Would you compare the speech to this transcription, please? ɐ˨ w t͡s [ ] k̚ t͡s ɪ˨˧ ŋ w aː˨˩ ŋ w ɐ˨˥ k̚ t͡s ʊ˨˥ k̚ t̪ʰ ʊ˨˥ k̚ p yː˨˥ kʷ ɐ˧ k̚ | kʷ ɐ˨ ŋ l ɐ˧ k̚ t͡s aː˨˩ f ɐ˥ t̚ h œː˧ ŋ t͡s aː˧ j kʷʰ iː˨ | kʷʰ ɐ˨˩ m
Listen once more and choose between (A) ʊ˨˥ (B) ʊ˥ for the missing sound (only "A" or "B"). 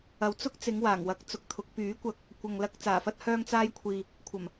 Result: B